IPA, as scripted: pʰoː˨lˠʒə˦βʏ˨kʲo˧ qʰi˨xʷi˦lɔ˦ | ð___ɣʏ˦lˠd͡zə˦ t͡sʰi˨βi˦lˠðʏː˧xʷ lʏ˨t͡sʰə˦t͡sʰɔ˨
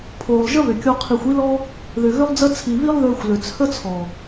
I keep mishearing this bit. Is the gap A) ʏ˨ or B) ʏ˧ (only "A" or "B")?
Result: A